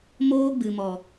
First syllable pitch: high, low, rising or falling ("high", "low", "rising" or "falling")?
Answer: high